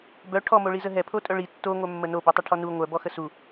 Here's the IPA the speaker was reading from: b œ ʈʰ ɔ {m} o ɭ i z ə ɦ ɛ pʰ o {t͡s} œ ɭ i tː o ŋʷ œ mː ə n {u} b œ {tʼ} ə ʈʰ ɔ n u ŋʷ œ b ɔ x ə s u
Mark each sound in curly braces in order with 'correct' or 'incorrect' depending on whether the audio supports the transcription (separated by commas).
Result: correct, incorrect, incorrect, incorrect